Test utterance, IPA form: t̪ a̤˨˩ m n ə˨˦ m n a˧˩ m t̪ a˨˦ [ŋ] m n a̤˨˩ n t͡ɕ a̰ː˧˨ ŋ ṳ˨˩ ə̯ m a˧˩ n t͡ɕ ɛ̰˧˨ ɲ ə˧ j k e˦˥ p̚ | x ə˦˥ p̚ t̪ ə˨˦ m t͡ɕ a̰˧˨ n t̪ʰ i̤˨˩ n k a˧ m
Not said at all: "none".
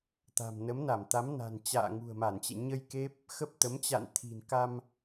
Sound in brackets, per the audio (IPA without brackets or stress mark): none